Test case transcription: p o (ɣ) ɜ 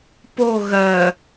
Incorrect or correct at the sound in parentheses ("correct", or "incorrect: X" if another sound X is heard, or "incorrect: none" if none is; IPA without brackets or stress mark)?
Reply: correct